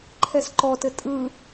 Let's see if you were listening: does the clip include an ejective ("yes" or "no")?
yes